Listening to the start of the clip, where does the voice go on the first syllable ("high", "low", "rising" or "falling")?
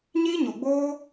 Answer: high